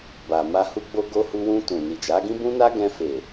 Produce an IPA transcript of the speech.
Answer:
ba˨ma˧ hu˧ɡ͡bo˧ɡo˧ hu˧wũ˧ tũ˨ni˨d͡ʒa˨˦ɡĩ˦ bũ˦na˦ɡɛ̃˧ fe˨

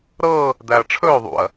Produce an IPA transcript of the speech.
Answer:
ɾɤː | d̪æɐ̯ʈ͡ʂʰɵː ðˤṵɐ̯

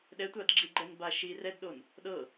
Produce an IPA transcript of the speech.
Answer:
ɗɛtʷadɡ͡ǁiɡ͡ǃɛn baʃi rɛdɗon | ɗɤ

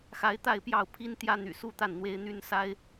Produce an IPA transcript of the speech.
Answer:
xa˧˥ɪ̯t̪a˥˧ɪ̯pjɑ˥˩ʊ̯pʰi˥n t̪jä˥n̪y̰˨˩su˥˧t̪a˥˩n n̪we˥ɪ̯ n̪y˥nsa˥ɪ̯

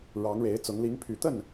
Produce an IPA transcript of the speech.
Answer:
ɻɑ˧˥ŋɻe˧˥ɪ̯t͡sʊ˧˥ŋ li˧˥ŋpʰy˨˩t̪ə˥˩n

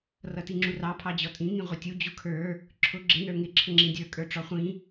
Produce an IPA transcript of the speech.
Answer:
rʌtiŋ͡ǁurɑ pʰɑd͡ʑɔtʼĩ ŋĩʁʷɪtʲu d͡ʑukʰə˞ | ǁʰʊ ɡ͡ǁɪ nə˞ŋɪ ǁʰəŋ͡ǁĩdʲə˞ kʼə˞ʈ͡ʂɔχʷĩ

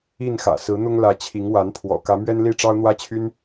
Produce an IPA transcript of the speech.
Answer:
i˥˨nxä̰˨˩ sɹ̩˨˦n̪ʊ˦ŋlä˨˦ t͡ɕʰi˨˦ŋwa˨˦npʰwɔ̰˨˩ kä˨˦mɥɛ˦nli˥˨ ʈ͡ʂɑ˦ʊ̯n̪wä˦t͡ɕʰy˦n

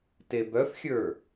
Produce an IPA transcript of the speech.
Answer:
tebœfxʲə˞

